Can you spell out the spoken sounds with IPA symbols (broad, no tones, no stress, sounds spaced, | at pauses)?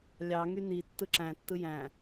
lʲ ɑ ŋ y n i tː ɯ ǁ æ̃ tː ɯ j æ̃